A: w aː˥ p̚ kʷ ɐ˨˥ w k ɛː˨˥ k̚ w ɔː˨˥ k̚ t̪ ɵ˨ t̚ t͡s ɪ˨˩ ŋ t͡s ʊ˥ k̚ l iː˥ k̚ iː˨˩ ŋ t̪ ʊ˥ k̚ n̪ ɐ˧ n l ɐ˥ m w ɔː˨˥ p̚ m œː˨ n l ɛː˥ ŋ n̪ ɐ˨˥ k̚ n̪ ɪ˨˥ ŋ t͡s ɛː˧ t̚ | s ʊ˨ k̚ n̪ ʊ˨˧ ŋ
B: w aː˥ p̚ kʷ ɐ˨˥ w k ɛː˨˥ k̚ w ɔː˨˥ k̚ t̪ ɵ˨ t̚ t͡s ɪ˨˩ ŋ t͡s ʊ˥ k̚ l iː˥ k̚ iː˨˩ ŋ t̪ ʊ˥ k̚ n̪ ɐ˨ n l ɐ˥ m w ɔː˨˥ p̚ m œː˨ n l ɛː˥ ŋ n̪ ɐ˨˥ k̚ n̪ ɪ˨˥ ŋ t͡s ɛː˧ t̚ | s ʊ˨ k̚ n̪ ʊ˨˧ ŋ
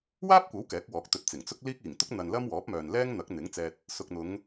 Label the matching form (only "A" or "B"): B